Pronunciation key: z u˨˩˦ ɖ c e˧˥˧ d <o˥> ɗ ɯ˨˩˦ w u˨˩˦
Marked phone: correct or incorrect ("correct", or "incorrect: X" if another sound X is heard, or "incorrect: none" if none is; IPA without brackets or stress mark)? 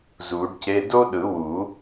correct